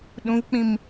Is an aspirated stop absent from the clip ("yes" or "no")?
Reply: yes